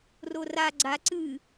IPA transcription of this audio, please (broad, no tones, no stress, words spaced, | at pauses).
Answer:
rora ɡ͡ǀa ǀɨ